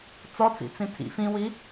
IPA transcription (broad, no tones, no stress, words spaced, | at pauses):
t͡sɔt͡sḭt͡sĩ tʰḭ fĩwi